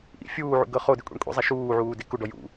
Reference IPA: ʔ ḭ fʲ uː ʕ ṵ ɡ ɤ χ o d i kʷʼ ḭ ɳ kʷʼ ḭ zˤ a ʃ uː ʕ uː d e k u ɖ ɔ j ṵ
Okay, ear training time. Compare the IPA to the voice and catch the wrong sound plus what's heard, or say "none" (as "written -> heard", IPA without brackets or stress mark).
none